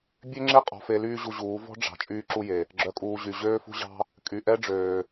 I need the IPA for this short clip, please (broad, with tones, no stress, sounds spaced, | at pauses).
bʲ ø˦ ŋ͡ǁ e˦ qʼ ɔ̤˨ f e˧ l yː˦ ʑ u˧ ʑ uː˨˦ v ɔ̤˦ ɖ͡ʐ ɑ̤˨ t͡ʃʼ yː˧ ǁ u˧ j e˨ | ɡ͡ǁ œ˨ kʼ uː˨ ʑ y˨ ʑ øː˦ f ṳ˦ ʑ ɑ̤˦ | kʼ y˨ ʔ ɛ˦ ɖ͡ʐ øː˨